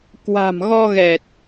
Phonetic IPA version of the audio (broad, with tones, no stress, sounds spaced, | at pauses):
k w a̤˨˩ m ɣ ɔ˧ ɣ ɛ˨˩ t̚